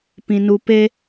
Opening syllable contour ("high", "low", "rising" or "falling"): low